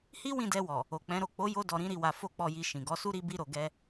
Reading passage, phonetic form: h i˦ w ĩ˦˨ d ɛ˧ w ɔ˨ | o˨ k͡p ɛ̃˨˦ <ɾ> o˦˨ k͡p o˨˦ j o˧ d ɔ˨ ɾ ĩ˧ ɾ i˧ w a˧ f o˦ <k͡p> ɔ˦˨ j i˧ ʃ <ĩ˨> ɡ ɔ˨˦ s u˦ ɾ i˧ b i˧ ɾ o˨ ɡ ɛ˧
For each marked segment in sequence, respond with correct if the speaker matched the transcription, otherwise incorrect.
correct, correct, correct

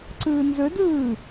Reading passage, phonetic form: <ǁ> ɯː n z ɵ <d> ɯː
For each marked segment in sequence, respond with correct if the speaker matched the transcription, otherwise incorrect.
incorrect: ǀ, correct

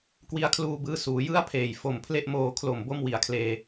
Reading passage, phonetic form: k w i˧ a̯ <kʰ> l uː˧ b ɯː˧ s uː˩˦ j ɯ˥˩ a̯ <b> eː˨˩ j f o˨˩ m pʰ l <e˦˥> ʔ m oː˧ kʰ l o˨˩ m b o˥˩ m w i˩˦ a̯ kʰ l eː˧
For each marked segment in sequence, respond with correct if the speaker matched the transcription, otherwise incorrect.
correct, incorrect: pʰ, incorrect: e˥˩

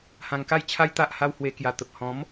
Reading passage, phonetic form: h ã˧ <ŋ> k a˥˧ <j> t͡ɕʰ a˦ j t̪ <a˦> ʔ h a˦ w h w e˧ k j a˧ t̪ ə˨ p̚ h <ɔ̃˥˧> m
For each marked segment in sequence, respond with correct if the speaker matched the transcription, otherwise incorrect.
correct, correct, correct, incorrect: ɔ̃˨˦

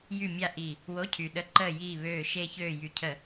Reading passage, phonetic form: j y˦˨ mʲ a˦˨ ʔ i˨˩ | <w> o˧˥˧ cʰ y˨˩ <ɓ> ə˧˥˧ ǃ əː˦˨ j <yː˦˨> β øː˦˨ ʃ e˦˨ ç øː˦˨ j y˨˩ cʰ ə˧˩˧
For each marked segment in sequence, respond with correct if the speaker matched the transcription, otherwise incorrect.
correct, incorrect: ɗ, incorrect: iː˦˨

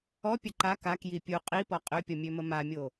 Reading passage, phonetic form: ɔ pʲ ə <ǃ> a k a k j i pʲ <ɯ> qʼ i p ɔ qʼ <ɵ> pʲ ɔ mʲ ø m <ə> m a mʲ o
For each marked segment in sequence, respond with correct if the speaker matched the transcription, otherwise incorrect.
correct, incorrect: u, incorrect: ø, correct

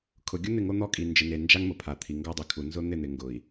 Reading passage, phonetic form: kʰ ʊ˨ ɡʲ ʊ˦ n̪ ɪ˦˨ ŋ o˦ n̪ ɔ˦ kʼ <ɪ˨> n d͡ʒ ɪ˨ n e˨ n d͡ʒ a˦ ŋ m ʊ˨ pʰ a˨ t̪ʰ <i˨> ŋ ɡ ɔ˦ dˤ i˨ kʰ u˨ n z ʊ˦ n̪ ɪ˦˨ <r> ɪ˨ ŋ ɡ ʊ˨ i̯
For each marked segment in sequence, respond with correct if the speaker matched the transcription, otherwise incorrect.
incorrect: i˨, correct, incorrect: n̪

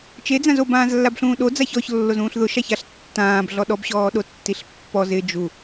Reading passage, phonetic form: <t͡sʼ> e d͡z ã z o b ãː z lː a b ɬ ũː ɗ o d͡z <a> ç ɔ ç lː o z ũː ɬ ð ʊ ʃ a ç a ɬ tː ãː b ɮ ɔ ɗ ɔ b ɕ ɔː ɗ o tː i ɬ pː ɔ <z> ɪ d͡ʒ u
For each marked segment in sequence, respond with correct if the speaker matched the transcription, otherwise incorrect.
incorrect: t͡ʃ, correct, correct

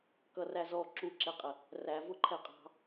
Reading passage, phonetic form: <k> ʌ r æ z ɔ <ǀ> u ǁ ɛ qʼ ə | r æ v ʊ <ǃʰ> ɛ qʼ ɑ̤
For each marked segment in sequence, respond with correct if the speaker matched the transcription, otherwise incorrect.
correct, incorrect: ǁ, correct

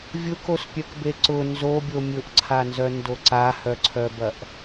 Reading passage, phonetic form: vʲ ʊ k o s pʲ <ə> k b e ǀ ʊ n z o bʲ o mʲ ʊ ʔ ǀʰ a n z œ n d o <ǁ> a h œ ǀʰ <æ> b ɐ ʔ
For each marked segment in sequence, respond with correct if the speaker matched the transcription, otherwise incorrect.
incorrect: œ, incorrect: ǀ, incorrect: œ

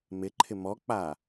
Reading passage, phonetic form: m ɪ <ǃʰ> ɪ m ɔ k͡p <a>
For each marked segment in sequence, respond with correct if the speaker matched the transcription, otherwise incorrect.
correct, correct

